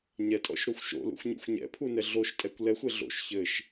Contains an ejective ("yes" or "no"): yes